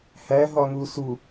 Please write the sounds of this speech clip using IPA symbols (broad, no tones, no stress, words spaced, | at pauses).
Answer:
hæ ɦɒŋusu